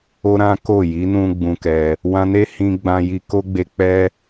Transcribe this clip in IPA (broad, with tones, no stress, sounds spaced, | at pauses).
o˦ ɾ ã˦ k o˦˨ j i˨˦ n ũ˧ ɡ͡b ũ˧ k ɛ˧ | w ã˧ n e˦ h ĩ˧ ɡ͡b ã˧ j i˧ k o˦ ɡ͡b e˧ k͡p ɛ˦